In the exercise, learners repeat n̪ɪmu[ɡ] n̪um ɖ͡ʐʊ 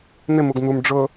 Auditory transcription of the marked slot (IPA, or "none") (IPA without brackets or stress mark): ɡ